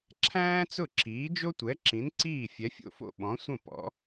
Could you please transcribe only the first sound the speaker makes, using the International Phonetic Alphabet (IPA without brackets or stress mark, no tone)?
ǁʰ